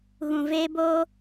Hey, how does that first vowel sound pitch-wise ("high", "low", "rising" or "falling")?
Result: low